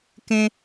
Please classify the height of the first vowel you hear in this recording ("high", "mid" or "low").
mid